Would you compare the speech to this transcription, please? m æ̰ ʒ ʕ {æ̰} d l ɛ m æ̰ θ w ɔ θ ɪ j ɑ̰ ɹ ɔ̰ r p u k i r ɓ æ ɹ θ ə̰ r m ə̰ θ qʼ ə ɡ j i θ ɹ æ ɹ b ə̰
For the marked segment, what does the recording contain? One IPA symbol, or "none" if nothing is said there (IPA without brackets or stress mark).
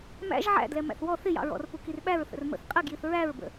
æ̰